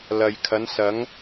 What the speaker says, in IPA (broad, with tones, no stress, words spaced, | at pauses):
lɐ˨jkʰɐ˨˧n sɐ˨˧ŋ